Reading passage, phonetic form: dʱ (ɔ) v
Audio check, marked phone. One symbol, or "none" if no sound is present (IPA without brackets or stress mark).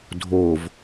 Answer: o